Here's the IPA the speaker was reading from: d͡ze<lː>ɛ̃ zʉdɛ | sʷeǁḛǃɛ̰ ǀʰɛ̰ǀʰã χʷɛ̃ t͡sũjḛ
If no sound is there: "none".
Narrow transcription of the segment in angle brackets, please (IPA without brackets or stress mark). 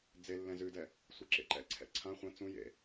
lː